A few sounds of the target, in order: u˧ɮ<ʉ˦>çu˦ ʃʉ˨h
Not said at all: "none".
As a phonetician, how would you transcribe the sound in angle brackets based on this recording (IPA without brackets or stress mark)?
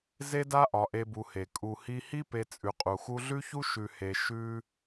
ʉ˦